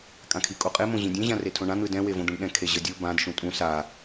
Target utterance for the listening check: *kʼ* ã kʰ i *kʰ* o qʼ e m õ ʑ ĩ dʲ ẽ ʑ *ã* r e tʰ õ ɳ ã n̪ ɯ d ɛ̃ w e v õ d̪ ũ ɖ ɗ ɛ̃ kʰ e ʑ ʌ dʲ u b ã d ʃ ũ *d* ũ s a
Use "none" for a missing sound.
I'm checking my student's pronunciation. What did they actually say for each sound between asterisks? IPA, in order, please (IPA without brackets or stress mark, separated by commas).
kʼ, kʼ, ã, tʼ